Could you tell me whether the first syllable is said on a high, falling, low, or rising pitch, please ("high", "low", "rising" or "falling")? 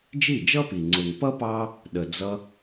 falling